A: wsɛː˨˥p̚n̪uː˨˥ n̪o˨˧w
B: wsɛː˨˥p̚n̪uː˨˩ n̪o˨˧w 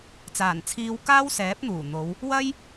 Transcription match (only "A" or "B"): B